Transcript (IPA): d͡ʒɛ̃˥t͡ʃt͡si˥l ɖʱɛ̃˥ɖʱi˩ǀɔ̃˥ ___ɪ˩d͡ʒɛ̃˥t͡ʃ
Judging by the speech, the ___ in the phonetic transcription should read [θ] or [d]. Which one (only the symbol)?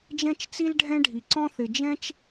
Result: θ